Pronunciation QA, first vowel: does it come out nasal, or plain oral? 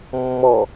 oral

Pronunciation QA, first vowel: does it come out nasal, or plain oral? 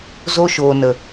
oral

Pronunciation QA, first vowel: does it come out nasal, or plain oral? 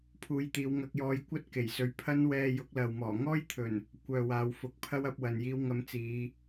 oral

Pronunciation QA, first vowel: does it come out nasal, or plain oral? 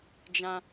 nasal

